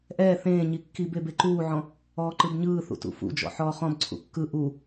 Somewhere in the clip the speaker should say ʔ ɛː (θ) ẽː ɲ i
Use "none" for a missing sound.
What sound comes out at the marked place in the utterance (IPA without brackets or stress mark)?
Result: θ